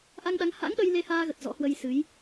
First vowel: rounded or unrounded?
unrounded